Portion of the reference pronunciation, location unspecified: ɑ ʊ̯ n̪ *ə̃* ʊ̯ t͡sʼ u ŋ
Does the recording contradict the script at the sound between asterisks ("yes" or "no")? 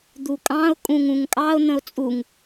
no